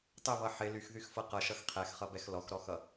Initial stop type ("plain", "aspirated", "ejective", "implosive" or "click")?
plain